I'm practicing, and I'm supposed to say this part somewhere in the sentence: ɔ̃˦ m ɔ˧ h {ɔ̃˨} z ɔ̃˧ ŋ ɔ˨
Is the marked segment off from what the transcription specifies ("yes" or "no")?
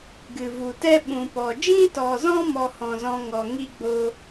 no